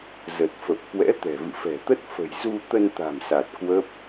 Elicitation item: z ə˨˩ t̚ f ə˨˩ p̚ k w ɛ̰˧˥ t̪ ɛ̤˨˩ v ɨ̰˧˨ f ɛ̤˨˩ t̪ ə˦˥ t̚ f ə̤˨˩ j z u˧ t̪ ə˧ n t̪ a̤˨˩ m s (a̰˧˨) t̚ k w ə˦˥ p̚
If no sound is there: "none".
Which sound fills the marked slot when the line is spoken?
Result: a˨˩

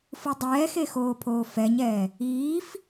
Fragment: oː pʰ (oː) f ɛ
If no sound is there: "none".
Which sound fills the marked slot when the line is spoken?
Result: oː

